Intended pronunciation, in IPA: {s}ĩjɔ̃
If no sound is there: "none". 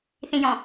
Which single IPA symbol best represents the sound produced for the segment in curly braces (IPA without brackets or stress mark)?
θ